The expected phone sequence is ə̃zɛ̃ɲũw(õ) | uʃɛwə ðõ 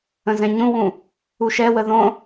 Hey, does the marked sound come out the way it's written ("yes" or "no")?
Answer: no